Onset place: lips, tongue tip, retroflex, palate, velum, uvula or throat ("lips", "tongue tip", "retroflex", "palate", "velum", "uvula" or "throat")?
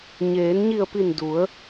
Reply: palate